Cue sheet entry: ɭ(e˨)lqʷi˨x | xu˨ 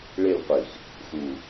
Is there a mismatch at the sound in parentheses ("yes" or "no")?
yes